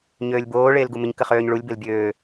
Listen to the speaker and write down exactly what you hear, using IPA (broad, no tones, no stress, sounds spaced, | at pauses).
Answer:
ɲ øː lʲ b oː ɭ eː l ɡ u m ɪ ɲ k ə χ øː ɲ ɭ u lʲ b e l bʲ øː